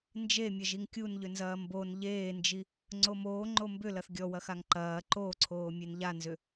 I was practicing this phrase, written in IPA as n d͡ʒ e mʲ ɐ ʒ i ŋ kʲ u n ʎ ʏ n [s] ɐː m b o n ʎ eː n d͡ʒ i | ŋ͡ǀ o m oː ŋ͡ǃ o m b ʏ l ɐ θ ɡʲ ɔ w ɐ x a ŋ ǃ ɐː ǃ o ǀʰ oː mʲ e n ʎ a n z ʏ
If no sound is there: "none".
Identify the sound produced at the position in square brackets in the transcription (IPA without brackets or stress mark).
z